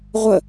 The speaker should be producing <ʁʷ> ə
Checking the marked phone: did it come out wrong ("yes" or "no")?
no